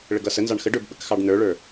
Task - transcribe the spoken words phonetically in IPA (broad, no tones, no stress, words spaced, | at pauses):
ɭəɡʌsənzɑɳ xəɖə˞b ɓəkxɑɖnə˞ɭə˞